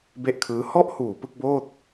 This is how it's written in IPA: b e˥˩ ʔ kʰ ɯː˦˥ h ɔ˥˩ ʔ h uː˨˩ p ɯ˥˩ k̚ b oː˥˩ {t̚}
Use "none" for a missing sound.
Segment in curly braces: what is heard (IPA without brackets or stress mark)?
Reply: t̚